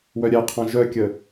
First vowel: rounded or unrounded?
rounded